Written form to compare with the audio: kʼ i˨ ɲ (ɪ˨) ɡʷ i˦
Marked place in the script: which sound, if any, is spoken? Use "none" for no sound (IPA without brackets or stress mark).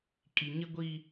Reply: ɪ˦